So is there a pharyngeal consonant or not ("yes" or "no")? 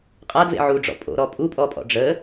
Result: yes